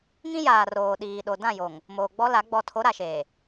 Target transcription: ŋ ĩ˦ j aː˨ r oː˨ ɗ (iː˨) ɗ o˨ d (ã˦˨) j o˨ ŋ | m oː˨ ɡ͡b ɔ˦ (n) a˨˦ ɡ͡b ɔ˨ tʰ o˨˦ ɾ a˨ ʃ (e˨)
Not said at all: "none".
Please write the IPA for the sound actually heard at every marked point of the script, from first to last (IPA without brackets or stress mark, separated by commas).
iː˨, ã˦˨, l, eː˨